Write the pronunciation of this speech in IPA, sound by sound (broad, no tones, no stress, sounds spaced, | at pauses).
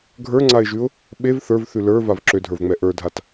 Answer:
ɡʱ ə˞ ŋ͡ǀ a ɪ̯ ʒ ʉ ʊ̯ | ɓ e v θ ə˞ v θ ʉ l ə˞ v a v ǁ ø dʱ ə˞ v ŋ͡m ɛ ʔ ə˞ dʱ a t